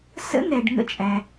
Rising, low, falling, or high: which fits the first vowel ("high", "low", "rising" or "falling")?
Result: rising